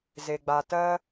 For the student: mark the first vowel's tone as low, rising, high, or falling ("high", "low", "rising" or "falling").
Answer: low